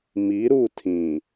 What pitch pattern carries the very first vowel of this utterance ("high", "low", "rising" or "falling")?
rising